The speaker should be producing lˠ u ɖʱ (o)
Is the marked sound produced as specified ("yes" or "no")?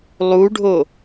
yes